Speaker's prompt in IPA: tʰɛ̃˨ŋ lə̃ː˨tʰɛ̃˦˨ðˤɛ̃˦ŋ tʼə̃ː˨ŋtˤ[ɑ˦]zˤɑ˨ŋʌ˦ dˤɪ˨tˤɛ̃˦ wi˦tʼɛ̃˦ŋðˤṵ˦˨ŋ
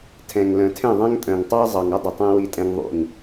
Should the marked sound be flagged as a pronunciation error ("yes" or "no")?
no